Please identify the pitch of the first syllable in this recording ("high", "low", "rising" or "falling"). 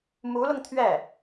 rising